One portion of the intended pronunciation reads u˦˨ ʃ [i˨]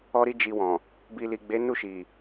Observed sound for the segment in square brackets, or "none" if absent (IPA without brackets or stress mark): i˨